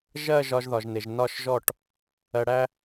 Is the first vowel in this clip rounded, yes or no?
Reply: no